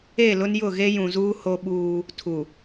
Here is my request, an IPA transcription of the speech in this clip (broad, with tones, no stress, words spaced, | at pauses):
e˦˨lʊ˦njʊ˦˨ ɣe˦jũ˨zuː˦ ho˦ɓuː˦ | tʰu˨